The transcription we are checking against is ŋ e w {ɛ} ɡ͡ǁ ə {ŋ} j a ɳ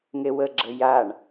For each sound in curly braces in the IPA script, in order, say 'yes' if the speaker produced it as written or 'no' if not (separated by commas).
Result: no, no